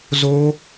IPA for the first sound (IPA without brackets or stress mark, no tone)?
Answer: z